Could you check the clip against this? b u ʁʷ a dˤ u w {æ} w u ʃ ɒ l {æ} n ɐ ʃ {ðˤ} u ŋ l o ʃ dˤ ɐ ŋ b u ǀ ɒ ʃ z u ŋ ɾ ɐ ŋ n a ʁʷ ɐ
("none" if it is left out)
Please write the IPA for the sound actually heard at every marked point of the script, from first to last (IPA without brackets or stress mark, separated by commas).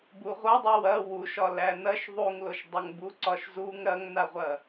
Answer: ɐ, æ, ðˤ